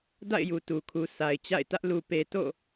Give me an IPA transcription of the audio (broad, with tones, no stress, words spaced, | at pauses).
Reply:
da̰˦˨ɪ̯ju˨tu˨kʰu˨ sa˨ɪ̯t͡ɕa̰˦˨ɪ̯tä˦ʔ lu˨pe˨ to̰˦˨